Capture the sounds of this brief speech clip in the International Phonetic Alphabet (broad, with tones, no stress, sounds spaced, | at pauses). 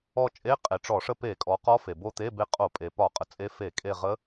ɔ˦˨ t͡ʃʼ e˧˥˧ qʼ e˩˧ ʈ͡ʂ ɔ˧˩˧ ʂ ə˦˨ p e˧˩˧ kʼ ɔ˩˧ q ɔ˧˥ f e˩ b o˦˨ t̪ e˧˥˧ b e˧˥ qʼ o˧˩˧ pʼ e˩ p ɒ˧˩˧ qʼ ə˩ t͡sʼ e˧˥ f e˧˩˧ kʼ e˦˨ ʁ ə˧˥